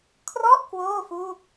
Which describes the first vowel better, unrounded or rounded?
rounded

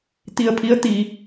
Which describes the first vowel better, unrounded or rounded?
unrounded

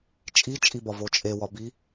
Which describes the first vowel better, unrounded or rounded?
unrounded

